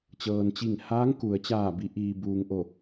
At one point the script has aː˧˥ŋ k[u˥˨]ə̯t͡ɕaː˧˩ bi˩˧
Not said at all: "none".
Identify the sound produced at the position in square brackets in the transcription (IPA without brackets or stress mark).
u˩